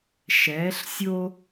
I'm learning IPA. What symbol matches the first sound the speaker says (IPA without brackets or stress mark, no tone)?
ʃ